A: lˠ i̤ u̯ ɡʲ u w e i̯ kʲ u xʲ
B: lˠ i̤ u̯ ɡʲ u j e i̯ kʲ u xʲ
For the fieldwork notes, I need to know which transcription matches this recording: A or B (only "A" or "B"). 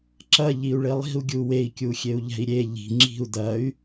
A